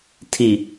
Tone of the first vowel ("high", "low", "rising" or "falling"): low